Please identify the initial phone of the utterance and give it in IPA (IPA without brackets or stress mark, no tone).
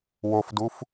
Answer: w